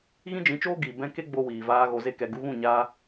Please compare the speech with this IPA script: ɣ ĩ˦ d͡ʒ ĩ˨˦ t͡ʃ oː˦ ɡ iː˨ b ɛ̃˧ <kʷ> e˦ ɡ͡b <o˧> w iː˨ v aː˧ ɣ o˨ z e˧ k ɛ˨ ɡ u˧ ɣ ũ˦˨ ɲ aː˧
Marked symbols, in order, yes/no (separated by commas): no, yes